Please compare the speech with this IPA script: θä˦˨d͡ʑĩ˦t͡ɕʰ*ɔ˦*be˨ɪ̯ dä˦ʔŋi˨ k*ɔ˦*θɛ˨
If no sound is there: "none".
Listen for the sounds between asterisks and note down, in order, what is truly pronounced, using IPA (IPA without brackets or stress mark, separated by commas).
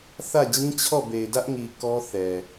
ɔ˦˨, ɔ˦